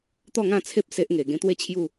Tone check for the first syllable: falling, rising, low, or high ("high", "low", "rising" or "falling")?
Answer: falling